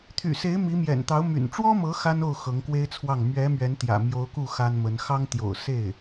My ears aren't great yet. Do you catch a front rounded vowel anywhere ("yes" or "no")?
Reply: yes